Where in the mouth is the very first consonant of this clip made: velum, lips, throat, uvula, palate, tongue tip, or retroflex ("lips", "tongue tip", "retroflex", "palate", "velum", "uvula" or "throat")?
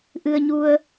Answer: throat